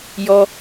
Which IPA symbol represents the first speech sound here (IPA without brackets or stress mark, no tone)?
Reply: j